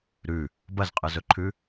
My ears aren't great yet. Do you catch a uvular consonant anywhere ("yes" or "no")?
yes